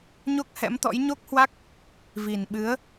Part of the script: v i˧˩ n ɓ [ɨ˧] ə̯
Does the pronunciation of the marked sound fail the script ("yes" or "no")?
yes